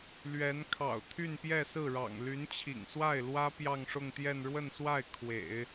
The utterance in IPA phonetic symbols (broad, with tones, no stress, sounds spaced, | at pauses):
l ɥ ɛ˧˥ n kʰ ɑ̰˨˩ ʊ̯ t̪ʰ y˥˧ n p j ɛ˥˧ s ɹ̩˥˩ ɻ ɑ̰˨˩ ŋ l y˧˥ n t͡ɕʰ ḭ˨˩ ŋ s w a˥˩ ɪ̯ l w ä˥ p j ɑ˥˧ ŋ ʂ ʊ˥˧ ŋ t̪ j ɛ˥˧ n ɻ w ə˥˧ n s w a˥˩ ɪ̯ kʰ w ḛ˨˩˦ ɪ̯